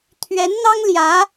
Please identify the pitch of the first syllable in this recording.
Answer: rising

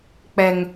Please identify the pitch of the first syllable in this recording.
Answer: low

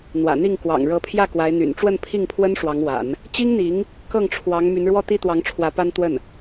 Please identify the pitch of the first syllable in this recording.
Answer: low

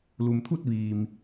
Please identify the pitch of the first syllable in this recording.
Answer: low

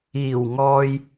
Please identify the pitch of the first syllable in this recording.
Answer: low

